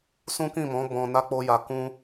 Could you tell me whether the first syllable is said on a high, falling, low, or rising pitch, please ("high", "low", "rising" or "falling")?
high